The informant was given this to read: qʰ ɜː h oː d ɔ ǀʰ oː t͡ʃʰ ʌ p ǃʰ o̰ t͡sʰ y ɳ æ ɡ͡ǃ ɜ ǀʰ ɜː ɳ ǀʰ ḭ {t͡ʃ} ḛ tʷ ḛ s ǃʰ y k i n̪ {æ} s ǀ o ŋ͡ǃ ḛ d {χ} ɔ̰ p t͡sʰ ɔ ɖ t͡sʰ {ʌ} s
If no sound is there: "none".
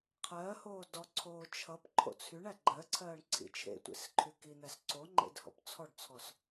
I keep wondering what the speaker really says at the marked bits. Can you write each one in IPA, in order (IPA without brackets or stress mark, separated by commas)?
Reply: t͡ʃʰ, æ, h, ɔ